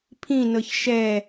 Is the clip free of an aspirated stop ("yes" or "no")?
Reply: no